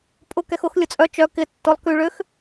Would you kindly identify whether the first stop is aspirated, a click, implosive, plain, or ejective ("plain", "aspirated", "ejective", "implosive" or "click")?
ejective